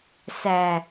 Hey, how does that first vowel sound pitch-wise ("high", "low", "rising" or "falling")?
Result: low